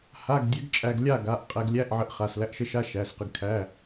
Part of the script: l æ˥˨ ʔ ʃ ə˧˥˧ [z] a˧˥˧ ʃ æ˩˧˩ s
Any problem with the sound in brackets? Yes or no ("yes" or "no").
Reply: yes